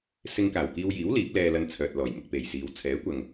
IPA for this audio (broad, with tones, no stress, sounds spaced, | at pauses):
s ɪ˧ ŋ k aː˨˩ w k iː˧ w j iː˨˥ w l iː˨˥ p̚ l ɛː˧ l ɐ˧ n t͡sʰ œː˨ t̚ l ɔː˨˩ j m ʊ˨ k̚ p e˨˩ j s iː˨ w t͡sʰ ɛː˨˥ kʷ ɐ˨ ŋ